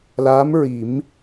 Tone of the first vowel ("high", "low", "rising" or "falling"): rising